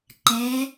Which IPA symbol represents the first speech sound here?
ǃ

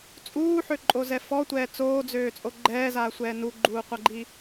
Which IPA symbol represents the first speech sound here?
t͡sʼ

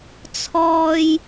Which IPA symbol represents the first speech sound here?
t͡sʰ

